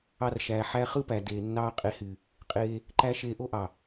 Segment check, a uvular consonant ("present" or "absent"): present